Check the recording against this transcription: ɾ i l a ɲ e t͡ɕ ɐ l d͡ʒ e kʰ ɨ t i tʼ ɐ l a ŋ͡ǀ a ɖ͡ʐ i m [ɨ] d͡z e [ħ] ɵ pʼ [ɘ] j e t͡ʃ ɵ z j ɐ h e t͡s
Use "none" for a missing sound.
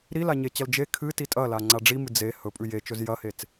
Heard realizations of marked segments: ɨ, h, ʉ

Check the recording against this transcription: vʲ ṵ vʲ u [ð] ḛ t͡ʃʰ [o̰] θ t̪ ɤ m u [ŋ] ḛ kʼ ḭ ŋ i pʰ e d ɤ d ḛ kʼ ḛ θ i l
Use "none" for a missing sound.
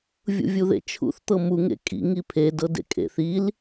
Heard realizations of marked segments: ð, ṵ, ŋ

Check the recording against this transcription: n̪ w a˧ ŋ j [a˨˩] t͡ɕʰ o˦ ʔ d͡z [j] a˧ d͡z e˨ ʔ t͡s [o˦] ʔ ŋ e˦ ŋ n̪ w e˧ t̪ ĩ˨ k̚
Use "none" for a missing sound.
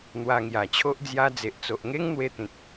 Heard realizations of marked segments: a˨˩, j, o˨

